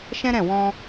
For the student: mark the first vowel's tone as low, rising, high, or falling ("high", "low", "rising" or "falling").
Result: high